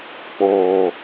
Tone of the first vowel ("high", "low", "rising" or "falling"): low